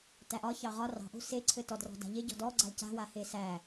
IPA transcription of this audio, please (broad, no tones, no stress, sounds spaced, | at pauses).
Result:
t æ ʔ ɒ ç ɑ ʁ ɒ r ɑ̤ ʔ o̤ s e ǀʰ ɘ t ɔ d r ɔ̤ d a̤ ʎ e ɟ ɔ̤ d ɔ ɡ͡ǀ a l c a̤ w a h e s æ